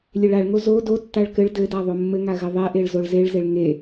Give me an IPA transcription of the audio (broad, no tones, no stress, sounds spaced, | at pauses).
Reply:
lʲ e ɭ a ɭ ŋ o z o d o tː a ɭ k ɘ ɭ d ɘ d a ðˤ o mː ɘ ŋ a ɣ ɘ ðˤ e ʔ e ɭ z o ɭ z e ɭ z e ɭ ŋ e